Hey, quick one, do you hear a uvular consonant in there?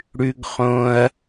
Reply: yes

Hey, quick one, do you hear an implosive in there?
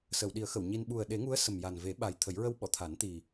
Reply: yes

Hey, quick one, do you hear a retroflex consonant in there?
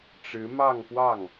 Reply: yes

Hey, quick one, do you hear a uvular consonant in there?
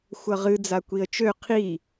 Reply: yes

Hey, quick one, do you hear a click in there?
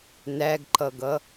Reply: yes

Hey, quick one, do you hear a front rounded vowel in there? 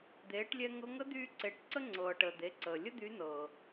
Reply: yes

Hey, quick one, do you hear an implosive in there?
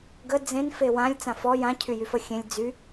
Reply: no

